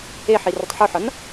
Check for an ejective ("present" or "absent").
absent